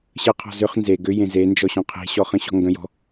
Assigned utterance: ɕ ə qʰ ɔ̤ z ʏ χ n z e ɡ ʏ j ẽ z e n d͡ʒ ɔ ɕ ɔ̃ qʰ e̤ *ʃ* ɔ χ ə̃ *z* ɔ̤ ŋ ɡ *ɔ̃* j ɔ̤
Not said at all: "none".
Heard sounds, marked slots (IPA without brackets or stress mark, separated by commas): ɕ, ɕ, ə̃